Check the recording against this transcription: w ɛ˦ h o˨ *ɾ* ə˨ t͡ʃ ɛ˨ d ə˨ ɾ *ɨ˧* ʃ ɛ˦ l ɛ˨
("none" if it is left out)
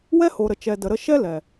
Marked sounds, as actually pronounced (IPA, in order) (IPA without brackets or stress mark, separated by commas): ɾ, ə˧